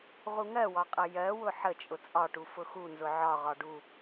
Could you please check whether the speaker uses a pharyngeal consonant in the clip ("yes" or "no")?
yes